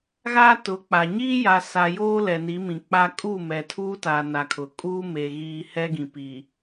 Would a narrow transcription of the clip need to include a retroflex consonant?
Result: no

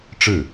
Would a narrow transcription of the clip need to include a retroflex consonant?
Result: yes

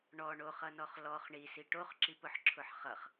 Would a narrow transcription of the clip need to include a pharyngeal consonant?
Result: yes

